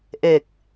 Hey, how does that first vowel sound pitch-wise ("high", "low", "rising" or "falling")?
low